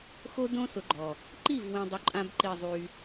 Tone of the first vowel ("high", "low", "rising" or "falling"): high